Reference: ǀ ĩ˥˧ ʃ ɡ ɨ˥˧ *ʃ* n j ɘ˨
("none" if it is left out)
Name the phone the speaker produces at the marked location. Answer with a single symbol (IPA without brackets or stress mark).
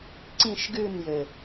none